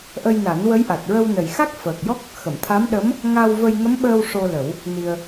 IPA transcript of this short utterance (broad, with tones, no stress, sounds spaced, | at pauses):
ʔ ə˧ j n a˨˩˦ n w ə˧˥ j ʔ a˨˩ t̚ ɹ ə˧ w n ə˨˩ j x a˦˥ k̚ f əː˨˩ k̚ j ɔ˦˥ k̚ | x ə˨˩˨ m t̪ʰ a˧˥ m ɗ ə˧˥ m | ŋ a˧ w v ə˧ j ŋ ə˧˥ m ɓ əː˧ w ʂ o˧ l ə˨˩˦ w | n i˧ ə̯